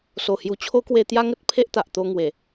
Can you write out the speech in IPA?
s o˨˩ h j u˨˩ t͡ɕʰ o˦ k w e˧ t̪ j a˦ ŋ ə˦ t̚ pʰ e˦ ʔ t̪ a˨ ʔ t̪ o˧ ŋ w e˨˩

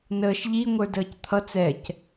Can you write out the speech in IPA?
n əː ʃ ʎ i ŋʷ ə˞ d əː c t̪ʰ ʌ t͡s ɛ c

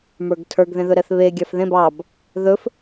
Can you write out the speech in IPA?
m ə˞ ɡ tʰ ə˞ ɡ ð ẽ ð ɵ ɾ ɛ θ β e ɡʲ ɑ f ð ẽ b ɑ b | ð ɵ f

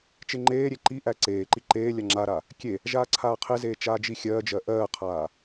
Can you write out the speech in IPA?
t͡ʃ e ŋ͡ǃ eː ɾʲ e ǃ i ʔ æ ǀ eː ǃ i ǃ eː lʲ a ŋ͡ǁ a ɾ a | kʲ e | ʒ aː ǀʰ aː qʰ e z eː t͡ʃ aː d͡ʒ i xʲ ɜː d͡ʒ ɜ ʔ ɜː qʰ aː

